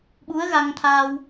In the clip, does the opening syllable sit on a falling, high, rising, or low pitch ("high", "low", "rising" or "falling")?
rising